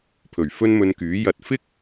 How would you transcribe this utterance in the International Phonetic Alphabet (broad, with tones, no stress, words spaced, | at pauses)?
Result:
pʰɵ˨˩ɥfɵ˥nmɵ˧nkyː˨˥ jɐ˧t̚ fɪ˥k̚